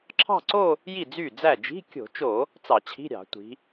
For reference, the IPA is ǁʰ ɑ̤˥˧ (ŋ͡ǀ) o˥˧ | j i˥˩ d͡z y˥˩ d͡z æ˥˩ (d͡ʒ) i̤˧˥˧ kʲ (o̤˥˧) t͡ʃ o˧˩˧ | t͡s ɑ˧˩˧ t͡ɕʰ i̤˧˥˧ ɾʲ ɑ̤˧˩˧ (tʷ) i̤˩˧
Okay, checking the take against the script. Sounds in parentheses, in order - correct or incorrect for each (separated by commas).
incorrect, correct, incorrect, correct